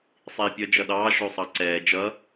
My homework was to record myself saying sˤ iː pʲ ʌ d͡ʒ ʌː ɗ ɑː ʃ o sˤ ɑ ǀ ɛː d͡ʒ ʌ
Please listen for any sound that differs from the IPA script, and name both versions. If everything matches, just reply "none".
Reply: ʌː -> ʌ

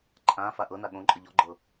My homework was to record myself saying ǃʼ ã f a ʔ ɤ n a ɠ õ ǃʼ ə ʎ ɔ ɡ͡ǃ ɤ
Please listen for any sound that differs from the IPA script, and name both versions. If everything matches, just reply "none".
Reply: none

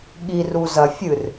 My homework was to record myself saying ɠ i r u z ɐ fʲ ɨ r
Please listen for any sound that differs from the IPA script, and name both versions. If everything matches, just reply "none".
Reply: none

